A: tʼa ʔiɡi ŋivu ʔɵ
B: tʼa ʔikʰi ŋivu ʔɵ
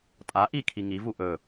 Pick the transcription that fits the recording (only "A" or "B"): B